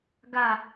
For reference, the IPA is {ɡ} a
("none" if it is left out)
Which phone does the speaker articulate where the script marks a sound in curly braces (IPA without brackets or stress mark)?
ɡ